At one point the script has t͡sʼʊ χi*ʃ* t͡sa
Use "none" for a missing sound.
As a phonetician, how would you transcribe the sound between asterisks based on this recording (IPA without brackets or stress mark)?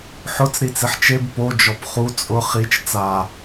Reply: t͡ʃ